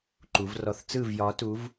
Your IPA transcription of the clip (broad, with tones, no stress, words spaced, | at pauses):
ǃu˧˥vrɔ˥˧θ t͡sɯ˥˧vjɒ˧˥tu˧˥v